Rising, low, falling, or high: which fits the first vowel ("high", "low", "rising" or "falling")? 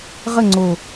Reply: falling